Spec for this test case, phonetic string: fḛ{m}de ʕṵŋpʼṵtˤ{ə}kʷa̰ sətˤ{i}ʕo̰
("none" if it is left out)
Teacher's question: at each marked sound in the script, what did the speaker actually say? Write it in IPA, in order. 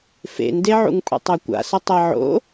n, a, e

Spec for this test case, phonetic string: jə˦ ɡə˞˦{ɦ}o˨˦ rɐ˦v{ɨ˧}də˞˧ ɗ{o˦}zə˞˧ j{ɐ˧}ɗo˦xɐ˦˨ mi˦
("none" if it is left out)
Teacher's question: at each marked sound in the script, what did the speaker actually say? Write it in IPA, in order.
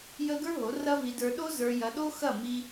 ɦ, i˧, o˦, ɐ˧

